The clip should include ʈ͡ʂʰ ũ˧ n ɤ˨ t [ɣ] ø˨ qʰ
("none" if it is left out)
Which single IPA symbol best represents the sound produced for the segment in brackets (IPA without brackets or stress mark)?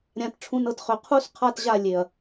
χ